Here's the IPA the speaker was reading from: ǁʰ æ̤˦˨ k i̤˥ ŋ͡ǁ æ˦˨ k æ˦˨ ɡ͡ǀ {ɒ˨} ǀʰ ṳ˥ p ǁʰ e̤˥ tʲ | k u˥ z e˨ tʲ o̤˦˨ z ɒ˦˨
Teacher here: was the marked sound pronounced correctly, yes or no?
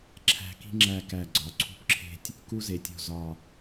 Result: yes